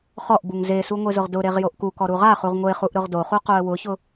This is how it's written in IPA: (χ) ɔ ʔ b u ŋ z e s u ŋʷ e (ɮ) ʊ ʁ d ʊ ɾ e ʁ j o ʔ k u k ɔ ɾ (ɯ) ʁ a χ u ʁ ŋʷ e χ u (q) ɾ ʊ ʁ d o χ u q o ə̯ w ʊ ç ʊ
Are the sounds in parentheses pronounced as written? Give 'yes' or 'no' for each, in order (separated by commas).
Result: yes, no, no, no